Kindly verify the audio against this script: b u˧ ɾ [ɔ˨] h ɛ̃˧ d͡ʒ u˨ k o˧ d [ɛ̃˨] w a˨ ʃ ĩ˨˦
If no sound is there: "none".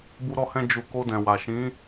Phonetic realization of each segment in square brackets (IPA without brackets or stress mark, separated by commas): ɔ˧, ɛ̃˨